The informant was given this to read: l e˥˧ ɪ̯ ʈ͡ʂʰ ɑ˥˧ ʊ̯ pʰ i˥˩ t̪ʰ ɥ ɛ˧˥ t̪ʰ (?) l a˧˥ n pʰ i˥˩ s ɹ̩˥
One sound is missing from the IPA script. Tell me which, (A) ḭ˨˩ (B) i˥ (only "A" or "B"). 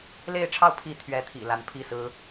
A